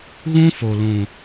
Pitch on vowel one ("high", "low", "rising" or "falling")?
high